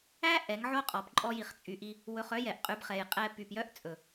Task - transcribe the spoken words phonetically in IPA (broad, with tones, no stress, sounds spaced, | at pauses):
æ˦ ʔ ɛ˨˦ ŋ ʕ o˦ qʼ ɔ˨ p ǃʼ ɔ˧ j i˨ χ t͡sʼ y˨ ʔ i˧ | w ɵ˧ χ œ˦ j ɛ˨ ʔ qʼ y˧ b χ ɛ˨ j qʼ ɛː˧ p y˨ p j œ˦ ʔ t͡sʼ ɵ˨